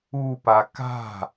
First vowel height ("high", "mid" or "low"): high